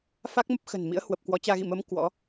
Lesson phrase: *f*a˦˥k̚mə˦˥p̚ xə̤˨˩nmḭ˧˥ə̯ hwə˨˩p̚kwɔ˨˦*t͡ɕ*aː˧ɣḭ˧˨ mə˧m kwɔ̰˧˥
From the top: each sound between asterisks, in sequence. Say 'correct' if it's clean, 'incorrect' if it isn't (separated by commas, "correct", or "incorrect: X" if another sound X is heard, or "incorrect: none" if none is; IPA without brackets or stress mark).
correct, correct